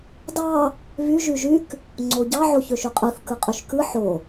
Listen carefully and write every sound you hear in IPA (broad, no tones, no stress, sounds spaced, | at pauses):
d ɑ | β y ʒ y ʒ y k | ŋ͡ǀ o ɟ ɑ ʕ o ç ø ʃ y qʼ ɯ θ k ɯ qʼ y ʃ k ɯ ħ o